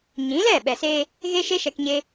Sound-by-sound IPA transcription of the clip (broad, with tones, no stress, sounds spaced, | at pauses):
ɲ ĩ˨˦ l ɛ˦˨ ɓ ɛ˨ s eː˧ | ɣ e˦ ʃ e˦ ʃ ɛ˧ k ɲ e˦